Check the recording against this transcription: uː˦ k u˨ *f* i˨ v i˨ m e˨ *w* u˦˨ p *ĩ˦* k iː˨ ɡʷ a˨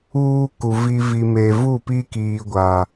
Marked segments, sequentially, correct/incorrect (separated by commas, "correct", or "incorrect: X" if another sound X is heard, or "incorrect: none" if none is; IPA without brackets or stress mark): incorrect: v, incorrect: v, incorrect: i˦